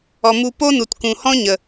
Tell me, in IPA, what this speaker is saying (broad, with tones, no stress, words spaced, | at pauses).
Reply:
ɔ˨ mu˧ po˦nu˨tkũ˨hɔ̃˦ ɲə˨